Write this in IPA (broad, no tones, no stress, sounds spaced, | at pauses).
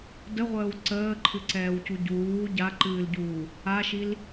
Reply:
d ə ʁʷ əː w ǀ əː ǃʰ ɨ ǀ ɛː w c u ɟ uː ɟ a ǃ ɨː l ɟ uː | a ʃ i l